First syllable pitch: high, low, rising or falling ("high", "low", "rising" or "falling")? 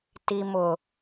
low